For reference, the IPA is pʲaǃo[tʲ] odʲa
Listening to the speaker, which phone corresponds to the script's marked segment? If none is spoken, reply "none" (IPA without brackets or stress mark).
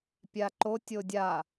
tʲ